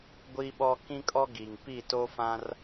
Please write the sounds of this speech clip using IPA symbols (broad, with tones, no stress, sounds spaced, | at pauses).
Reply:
ɡʷ i˦ ɓ ɔ˦ k ĩ˦ kʼ ɔ˦ ɡ i˨ ŋ p i˦˨ t o˦ f ã˦ r